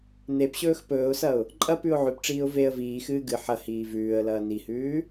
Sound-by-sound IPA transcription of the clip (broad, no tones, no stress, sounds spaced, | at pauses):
n e p ɕ ɵː x p ɵː ʊ̯ s ɐ ʊ̯ | ǃʼ ɐ p ʉ ʊ̯ ʕ ʉ p ʈ͡ʂ iː ʊ̯ v e ə̯ v iː x ɨː ɡ ɨ ħ ɐ h iː v ʉː ə̯ l ɐː n i h ʉː